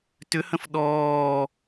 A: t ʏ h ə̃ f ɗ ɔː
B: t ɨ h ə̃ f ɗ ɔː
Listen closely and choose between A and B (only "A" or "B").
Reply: A